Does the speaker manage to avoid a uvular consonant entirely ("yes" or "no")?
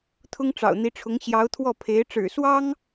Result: yes